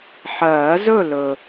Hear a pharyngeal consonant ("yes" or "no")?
yes